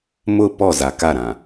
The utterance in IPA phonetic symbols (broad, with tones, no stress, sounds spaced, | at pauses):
m ʊ˦˨ p ɔ˦˨ z a˨ k a˦˨ ɾ ã˨